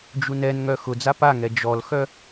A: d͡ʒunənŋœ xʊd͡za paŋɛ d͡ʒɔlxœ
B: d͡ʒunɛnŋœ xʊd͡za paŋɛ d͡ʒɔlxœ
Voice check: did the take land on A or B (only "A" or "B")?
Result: B